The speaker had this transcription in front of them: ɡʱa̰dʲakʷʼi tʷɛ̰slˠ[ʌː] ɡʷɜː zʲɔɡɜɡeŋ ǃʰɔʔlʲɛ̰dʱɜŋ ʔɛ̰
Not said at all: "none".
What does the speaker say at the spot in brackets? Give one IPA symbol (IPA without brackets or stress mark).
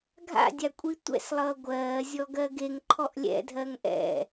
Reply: ʌː